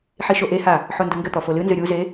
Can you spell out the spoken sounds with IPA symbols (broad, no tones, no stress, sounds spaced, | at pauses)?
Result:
ħ i ʃ o ʔ e h a | ħ o n d ɘ ŋ ɡ ɘ t̪ ɔ f o l ɨ n z ɨ ɾʲ u z e